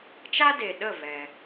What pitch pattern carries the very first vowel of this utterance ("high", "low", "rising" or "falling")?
high